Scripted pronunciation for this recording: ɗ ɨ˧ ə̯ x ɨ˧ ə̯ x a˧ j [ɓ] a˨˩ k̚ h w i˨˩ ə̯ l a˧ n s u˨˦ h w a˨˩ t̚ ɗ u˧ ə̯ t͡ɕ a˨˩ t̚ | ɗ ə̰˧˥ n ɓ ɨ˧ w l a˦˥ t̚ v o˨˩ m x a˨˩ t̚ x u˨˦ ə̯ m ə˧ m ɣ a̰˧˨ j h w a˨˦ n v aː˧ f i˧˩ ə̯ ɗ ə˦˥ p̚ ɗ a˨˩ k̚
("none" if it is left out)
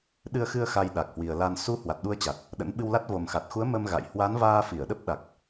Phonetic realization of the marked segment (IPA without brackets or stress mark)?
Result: ɗ